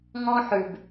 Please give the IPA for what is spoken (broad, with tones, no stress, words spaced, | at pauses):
ŋɔ̃˦ ħʉ˩b